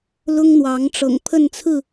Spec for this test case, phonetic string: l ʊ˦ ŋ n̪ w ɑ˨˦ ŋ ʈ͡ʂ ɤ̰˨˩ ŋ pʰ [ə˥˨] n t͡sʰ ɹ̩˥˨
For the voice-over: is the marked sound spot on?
yes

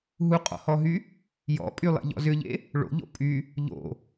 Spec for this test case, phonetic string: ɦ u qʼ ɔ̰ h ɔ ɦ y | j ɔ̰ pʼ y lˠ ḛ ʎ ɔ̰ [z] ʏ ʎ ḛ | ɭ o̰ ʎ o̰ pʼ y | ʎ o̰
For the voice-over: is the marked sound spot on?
yes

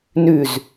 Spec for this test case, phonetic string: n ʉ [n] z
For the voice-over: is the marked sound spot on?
no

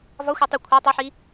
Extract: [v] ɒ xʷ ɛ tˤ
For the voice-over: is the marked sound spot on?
yes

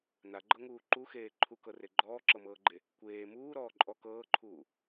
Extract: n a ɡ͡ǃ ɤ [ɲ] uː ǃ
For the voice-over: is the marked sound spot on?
no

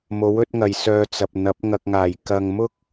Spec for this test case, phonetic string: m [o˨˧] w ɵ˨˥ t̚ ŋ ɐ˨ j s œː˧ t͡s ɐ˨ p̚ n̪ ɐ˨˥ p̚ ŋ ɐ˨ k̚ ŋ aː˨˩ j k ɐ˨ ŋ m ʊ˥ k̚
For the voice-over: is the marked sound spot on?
no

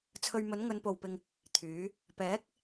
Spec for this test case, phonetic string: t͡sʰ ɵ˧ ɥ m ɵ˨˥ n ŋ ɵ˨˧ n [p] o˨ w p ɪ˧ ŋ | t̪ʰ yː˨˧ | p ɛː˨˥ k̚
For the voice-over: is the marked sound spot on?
yes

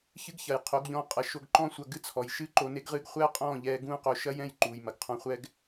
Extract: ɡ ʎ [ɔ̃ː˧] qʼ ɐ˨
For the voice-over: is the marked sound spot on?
yes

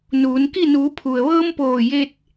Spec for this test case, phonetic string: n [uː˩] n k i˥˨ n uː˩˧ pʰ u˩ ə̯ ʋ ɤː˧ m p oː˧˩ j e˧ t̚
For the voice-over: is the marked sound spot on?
no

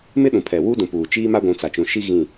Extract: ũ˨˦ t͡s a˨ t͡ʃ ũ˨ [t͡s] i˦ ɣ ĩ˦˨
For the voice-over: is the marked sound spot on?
no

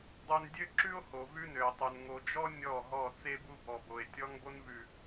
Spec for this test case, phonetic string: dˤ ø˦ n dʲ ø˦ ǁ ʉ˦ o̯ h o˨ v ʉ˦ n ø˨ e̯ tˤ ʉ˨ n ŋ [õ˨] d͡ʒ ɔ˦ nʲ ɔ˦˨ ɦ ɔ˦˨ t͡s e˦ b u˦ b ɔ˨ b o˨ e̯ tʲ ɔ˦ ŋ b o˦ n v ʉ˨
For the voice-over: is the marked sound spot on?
no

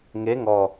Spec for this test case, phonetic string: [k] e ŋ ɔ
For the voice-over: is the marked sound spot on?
no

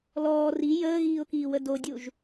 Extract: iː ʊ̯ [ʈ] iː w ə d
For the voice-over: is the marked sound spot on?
no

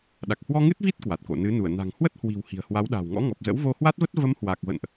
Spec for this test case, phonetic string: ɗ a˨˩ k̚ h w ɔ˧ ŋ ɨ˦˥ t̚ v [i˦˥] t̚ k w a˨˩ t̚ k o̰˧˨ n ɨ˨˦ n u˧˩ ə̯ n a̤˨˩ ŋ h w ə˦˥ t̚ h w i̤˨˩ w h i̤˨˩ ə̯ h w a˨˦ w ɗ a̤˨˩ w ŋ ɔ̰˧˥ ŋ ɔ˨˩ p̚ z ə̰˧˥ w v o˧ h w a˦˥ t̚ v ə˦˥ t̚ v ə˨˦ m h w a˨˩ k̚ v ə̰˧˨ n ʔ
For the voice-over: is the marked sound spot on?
yes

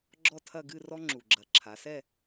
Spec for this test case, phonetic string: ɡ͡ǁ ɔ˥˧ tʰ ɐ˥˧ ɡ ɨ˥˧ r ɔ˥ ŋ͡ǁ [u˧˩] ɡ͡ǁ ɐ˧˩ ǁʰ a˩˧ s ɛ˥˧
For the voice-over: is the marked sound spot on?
yes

